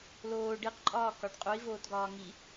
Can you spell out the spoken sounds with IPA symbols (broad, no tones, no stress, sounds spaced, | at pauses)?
l oː ɖ i q ǃʼ ɒː k ɒ ɖ qʼ u i̯ v oː t ɡ ɒː ŋ i